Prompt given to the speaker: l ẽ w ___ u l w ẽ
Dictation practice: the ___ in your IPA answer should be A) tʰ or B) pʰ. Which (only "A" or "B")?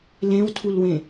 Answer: A